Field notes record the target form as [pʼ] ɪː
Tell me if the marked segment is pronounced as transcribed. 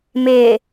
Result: no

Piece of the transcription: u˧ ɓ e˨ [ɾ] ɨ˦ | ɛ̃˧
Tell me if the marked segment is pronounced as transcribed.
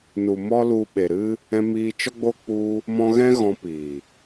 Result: yes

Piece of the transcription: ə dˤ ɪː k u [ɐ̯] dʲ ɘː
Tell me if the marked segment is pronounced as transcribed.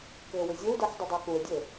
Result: no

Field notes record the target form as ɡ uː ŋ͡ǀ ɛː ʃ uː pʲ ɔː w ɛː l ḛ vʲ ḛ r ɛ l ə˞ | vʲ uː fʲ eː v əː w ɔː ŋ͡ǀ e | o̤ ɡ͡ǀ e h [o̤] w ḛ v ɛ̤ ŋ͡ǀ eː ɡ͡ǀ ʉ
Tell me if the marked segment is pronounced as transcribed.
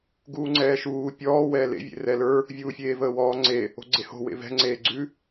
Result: yes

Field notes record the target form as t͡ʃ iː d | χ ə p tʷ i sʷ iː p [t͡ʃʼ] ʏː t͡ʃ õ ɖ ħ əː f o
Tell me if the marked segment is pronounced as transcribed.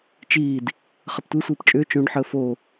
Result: yes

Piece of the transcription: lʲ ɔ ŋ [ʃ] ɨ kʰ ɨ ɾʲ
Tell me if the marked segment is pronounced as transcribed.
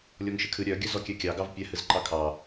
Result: yes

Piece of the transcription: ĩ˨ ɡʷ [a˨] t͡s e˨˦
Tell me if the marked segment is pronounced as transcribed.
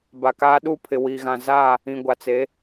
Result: yes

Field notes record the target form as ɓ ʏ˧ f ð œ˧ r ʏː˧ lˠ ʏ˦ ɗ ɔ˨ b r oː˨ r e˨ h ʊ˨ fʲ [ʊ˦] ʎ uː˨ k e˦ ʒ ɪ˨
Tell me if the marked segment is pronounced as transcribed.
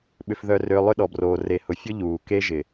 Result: yes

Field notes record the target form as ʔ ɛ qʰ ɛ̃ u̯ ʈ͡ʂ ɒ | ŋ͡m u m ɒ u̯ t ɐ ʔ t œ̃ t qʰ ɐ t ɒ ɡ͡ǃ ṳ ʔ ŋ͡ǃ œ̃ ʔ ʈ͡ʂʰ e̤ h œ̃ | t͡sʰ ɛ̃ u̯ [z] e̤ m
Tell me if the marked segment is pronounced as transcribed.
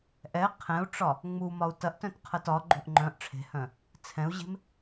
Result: no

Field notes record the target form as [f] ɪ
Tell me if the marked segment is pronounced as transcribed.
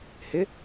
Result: no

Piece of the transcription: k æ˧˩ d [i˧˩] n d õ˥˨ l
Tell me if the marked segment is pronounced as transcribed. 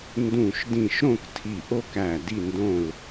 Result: no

